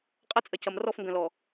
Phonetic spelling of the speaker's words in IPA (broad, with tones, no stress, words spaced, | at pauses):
qʼɐ˦t͡sʼɐ˨cɐ˨m rɔ˦˨fŋɡɐ̃˨lɔ˨